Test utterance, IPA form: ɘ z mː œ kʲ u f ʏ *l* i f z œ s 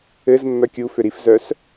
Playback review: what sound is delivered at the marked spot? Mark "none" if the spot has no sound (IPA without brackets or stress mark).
ɾ